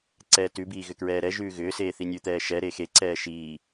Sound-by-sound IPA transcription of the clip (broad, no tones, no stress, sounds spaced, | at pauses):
ǀ ɛː t ʉ b iː ɣ ʏ k ɹ ɛː ɾ ɛ ʒ ʉː ɣ ʏː s eː θ i nʲ ʉ t̪ ɛː ʃ ɛ ɾ e x e ǀ ɛː ʃ iː